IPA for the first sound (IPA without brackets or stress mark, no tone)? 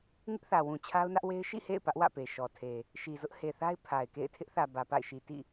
ŋ